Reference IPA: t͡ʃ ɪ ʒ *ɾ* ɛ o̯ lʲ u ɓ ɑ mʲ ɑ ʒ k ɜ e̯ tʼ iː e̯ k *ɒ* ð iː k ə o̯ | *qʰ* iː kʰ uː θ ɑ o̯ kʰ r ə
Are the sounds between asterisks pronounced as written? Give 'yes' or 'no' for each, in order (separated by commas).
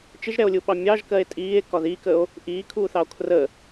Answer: yes, yes, no